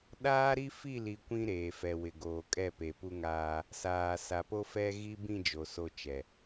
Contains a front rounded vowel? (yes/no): no